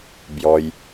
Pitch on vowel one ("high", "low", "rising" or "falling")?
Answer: low